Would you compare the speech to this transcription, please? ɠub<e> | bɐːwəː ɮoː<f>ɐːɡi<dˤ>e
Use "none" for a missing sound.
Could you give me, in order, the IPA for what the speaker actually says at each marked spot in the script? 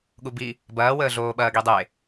i, ɓ, dˤ

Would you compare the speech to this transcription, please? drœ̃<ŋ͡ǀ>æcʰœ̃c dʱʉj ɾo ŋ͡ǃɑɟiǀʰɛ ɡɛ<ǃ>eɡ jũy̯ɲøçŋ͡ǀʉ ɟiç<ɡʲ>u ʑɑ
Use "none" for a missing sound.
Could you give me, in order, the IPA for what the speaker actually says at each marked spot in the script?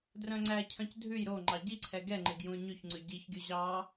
ŋ͡ǀ, ŋ͡ǃ, ɡʲ

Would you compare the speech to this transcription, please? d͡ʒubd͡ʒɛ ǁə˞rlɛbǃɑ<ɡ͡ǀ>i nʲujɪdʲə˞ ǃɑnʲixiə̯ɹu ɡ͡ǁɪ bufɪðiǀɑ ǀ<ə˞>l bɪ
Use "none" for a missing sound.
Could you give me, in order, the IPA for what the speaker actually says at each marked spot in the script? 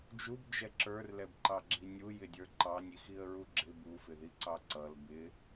ɡ͡ǁ, ʌ

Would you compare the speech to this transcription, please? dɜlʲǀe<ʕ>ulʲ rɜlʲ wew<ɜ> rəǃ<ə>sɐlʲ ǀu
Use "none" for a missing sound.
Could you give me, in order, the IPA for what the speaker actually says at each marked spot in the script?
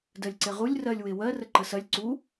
ʁ, ɜ, ə

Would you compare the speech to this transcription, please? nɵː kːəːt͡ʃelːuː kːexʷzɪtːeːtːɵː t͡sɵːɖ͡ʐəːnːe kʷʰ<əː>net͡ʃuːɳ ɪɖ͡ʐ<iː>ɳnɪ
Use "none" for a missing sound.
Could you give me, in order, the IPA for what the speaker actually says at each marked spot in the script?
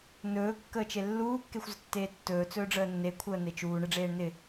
əː, eː

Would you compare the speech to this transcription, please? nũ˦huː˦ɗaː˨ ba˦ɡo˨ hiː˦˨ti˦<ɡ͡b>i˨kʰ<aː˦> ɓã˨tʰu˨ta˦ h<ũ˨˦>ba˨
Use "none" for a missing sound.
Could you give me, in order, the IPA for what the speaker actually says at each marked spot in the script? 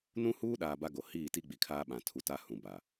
ɡ͡b, aː˦, ũ˨

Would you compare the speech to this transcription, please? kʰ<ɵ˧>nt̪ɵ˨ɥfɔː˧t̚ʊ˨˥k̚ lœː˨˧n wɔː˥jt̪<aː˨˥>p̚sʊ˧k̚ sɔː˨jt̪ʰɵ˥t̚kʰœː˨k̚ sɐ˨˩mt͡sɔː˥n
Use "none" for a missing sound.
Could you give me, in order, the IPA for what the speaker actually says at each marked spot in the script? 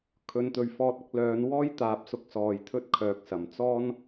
ɵ˨˧, aː˨˥

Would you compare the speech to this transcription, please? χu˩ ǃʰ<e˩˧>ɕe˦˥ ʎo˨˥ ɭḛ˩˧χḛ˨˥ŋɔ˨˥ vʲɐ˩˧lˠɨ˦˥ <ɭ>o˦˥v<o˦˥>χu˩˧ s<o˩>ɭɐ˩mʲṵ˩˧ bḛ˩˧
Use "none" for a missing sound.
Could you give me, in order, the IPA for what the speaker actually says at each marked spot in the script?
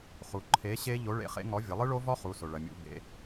e˨˥, ɭ, ɔ˦˥, o˩

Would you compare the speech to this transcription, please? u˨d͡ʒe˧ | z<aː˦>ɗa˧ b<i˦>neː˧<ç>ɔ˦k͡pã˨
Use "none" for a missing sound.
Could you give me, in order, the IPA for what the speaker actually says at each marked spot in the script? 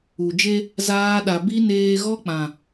aː˦, i˦, ɣ

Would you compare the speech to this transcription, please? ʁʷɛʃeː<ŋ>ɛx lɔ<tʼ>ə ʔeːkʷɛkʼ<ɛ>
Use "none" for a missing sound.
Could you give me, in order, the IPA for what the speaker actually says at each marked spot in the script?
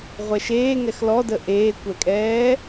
ŋ, d, ɛː

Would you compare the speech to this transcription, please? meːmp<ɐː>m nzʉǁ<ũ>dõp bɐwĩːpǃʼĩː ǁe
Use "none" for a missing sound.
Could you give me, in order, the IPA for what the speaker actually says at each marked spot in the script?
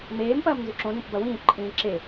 ɐː, õ

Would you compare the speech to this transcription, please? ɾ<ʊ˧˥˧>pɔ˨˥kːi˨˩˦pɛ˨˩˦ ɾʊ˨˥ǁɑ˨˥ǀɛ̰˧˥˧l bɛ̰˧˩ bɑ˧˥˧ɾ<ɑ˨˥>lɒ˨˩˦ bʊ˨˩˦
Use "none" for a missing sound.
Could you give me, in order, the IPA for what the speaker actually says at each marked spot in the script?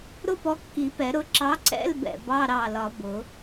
ʊ˥, ɑ˧˩

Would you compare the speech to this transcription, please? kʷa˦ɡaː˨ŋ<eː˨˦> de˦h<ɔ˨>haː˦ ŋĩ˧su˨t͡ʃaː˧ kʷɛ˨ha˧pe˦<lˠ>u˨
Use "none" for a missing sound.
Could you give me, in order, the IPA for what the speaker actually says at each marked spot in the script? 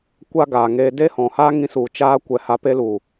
eː˧, ɔ̃˨, l

